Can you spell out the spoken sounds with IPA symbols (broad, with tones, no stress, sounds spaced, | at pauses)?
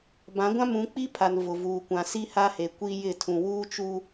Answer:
b ã˨˦ ɡʷ ã˦ m ũ˨˦ k͡p i˦ pʰ a˨ n v ʊ˨ v uː˨ kʷ ã˨ s i˦ h a˦ h e˨ kʷ i˦ j ɪ˦˨ tʰ ũ˨ w uː˦ t͡ʃ uː˦